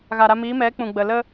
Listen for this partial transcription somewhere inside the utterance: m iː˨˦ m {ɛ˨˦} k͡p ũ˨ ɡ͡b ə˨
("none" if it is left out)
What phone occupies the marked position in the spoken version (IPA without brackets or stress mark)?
ɛ˨˦